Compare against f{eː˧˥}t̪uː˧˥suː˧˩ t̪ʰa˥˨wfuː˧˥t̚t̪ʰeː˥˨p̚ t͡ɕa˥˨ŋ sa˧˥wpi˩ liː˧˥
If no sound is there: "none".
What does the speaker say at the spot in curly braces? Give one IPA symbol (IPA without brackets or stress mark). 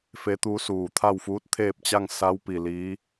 e˧˥